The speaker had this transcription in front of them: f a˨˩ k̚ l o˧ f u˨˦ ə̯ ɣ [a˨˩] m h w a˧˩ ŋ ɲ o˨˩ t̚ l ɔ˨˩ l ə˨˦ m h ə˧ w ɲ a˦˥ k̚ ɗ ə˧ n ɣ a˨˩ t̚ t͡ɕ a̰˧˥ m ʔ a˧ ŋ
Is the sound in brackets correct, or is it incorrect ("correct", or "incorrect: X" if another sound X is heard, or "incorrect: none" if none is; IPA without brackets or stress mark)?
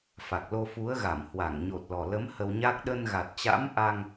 incorrect: a˧˩